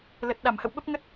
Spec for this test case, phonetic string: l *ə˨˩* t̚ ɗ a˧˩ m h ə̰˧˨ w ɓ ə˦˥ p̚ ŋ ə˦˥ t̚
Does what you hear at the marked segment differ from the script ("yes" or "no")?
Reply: no